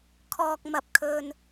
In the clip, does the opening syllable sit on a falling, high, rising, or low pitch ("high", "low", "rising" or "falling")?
high